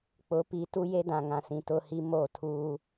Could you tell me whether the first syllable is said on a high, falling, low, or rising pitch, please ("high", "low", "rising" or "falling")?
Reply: rising